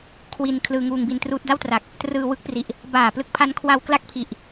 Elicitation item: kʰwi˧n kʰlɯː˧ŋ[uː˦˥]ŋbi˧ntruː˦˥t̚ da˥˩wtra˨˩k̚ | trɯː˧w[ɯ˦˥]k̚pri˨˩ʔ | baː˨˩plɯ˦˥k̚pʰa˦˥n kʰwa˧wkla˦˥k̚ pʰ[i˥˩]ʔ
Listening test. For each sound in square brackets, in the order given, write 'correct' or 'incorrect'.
incorrect: uː˧, correct, incorrect: i˨˩

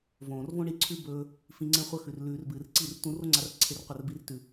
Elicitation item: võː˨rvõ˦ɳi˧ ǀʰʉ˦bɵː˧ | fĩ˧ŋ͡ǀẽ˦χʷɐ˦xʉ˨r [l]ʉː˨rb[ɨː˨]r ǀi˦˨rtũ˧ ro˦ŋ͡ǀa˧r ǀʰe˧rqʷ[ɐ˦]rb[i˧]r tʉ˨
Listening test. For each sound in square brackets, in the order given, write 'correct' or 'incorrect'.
correct, correct, incorrect: ɐ˦˨, correct

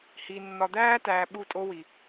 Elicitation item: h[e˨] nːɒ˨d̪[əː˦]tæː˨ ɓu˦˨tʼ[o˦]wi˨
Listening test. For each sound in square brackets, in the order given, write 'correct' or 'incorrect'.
incorrect: i˨, incorrect: æː˦, correct

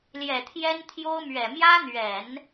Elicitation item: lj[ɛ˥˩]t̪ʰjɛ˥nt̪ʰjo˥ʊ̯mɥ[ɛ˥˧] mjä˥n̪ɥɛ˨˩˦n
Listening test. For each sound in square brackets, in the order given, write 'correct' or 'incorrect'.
incorrect: ɛ˨˩, incorrect: ɛ˨˩

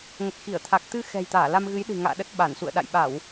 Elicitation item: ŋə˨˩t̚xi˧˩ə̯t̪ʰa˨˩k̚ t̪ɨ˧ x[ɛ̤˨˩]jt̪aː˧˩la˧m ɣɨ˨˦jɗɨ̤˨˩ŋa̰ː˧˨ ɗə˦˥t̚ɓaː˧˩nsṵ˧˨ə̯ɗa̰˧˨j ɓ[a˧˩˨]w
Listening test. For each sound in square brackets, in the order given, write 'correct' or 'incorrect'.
correct, correct

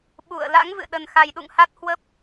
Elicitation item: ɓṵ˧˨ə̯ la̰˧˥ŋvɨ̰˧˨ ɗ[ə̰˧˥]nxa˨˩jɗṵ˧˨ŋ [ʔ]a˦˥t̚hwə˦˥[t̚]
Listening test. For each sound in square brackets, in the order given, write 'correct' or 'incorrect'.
incorrect: ə˨˩, incorrect: h, incorrect: p̚

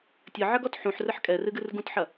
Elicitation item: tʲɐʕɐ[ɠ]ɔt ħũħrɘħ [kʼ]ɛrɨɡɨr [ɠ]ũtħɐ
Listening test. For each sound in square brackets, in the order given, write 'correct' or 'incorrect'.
incorrect: ɡ, correct, incorrect: ɡ

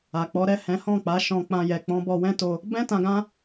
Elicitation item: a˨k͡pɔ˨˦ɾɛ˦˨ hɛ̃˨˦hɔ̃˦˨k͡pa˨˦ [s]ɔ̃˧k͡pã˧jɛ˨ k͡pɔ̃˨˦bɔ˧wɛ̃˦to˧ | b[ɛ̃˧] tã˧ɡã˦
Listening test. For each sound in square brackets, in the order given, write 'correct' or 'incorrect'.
incorrect: ʃ, incorrect: ɛ̃˦

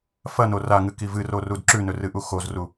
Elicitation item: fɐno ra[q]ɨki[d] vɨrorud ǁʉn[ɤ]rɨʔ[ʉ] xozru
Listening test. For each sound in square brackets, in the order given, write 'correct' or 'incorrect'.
incorrect: ŋ, incorrect: none, incorrect: ɵ, incorrect: u

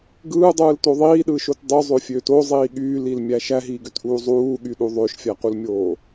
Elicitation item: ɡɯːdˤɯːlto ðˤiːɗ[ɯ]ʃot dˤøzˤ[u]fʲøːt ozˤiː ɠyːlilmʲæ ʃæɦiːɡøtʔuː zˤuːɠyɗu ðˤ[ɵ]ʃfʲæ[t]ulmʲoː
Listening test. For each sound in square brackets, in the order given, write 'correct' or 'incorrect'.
incorrect: ɯː, incorrect: ø, incorrect: ø, incorrect: q

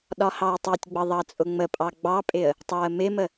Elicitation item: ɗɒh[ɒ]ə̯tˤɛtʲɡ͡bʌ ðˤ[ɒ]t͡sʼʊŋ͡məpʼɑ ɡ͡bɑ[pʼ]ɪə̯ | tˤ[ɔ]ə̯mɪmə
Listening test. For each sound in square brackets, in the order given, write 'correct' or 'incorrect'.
incorrect: ɑ, incorrect: ɑ, correct, incorrect: ɑ

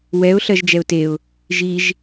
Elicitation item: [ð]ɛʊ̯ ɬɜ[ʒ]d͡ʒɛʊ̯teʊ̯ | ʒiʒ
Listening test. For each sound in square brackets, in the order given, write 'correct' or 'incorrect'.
incorrect: w, correct

